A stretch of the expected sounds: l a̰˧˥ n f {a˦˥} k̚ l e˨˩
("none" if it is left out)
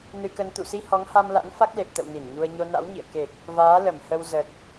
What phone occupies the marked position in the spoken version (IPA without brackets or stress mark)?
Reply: a˦˥